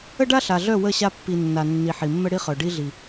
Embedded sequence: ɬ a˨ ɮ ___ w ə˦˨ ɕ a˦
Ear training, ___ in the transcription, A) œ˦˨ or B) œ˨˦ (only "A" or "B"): A